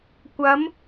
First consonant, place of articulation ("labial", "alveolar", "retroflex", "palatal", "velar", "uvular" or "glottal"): velar